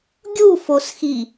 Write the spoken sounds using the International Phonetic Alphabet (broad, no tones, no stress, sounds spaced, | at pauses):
ɡʲ u f o s x i